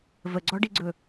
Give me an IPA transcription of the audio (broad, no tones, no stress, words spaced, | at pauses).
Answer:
vəɡ͡ǀɔɖiɡ͡ǀɵ